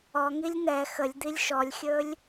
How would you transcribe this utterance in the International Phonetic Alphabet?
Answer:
ɔ ŋ i lʲ n ɛ x ə lʲ d̪ i lʲ ʃ ɔ lʲ xʲ ɵ lʲ

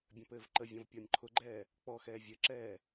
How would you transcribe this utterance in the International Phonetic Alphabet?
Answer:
bʲ ɐ̃ p ɘː v ǃ ə vʲ ɔ̃ v pʲ ɔ nʲ ǃʰ ʊ ɡ͡ǃ ɛː | k͡p ɔ x ɛː vʲ ɘ ǁ ɛː

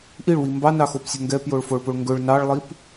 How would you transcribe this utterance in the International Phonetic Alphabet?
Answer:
ʔ i ɭ w i m b ɑ n ɑ x o p sʲ ɵ ŋ ɡ ɛ p j o ɭ f o ɭ p o ɭ ŋ ɡ ɵ ɭ n ɑ ɭ lˠ i p

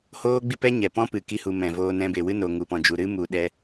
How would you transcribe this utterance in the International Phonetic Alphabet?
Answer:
h oː˦ ɡ͡b i˦ p ɛ˦ ɲ ɛ˨ p ɔ̃˦ p ɨ˨ k i˧ h u˨ m ɛ̃˨ v oː˧ n ɛ̃˧ b e˨ w ɨ˦ n o˨ ŋ u˨ p ɔ̃˨ d͡ʒ u˨ ɾ ɨ˦ m u˨ ɗ ɛ˧

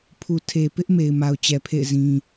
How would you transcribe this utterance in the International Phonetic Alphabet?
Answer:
pʰ u˨ tʰ e˨ p ɪ˦ ʔ m e˨ ɪ̯ m a˨ ʊ̯ t͡ɕ ɛ˨ pʰ ḛ˦˨ ɪ̯ z ĩ˨

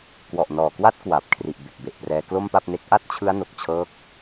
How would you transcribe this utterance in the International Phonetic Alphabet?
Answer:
k w ɔ˨˩ ʔ n ɔː˨˩ k w a˦˥ t̚ k w a˨˩ p̚ kʰ r i˨˩ ʔ b e˨˩ k̚ b e˨˩ ʔ p r ɛː˧ k l o˥˩ m p a˥˩ p̚ n e˦˥ k̚ ʔ a˥˩ t̚ t͡ɕʰ ɯ˦˥ a̯ n o˨˩ k̚ t͡ɕʰ ɤː˥˩ k̚

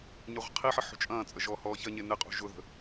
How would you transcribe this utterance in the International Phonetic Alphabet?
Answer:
ɲ ø ʁʷ ə̤ qʰ i ħ ə ħ ṳ t͡ʃʼ ɐ̃ː t͡sʼ ə ʒ ɔː h ɔː ç ɐ ɲ e n ɪ qʼ ṳ ʒ ʊ ð ə̤

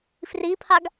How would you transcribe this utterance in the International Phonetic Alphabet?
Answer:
f r i pʰ a ɡ

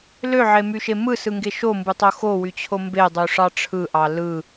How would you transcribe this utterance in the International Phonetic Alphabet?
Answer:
l ø ʕ e m y ʃ e m ɯ s ɯ ŋ ɡ e ʃ o m b ɯ tˤ o x o w y t͡ɕʰ o m b e dˤ y ʂ ɑ ʈ͡ʂʰ ɯ ʔ ɑ l ɯ

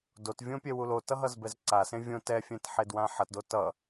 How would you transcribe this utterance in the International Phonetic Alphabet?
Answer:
d o t vʲ õ pʲ ɛ w u l o t ʌ ɦ ʌ z b ɛ z ǀ a s ẽ vʲ õ t ɛ fʲ ɛ̃ t ħ e d w ã ħ ʌ t d o t ʌ

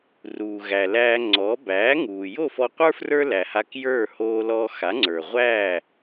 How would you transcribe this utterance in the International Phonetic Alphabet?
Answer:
r uː˩ ɣ æ˩ l æː˧ ŋ͡ǀ ɔ˩˥ b æː˩˥ ŋ uː˩ j o˥˩ f ɔ˧ qʷ ə˞˥ f r ə˞˥ l æ˩ h a˧ k j ə˞˥˩ h oː˧ l ɔ˧ x a˩˥ ŋ͡ǀ ə˞˩ ʁʷ æː˥˩

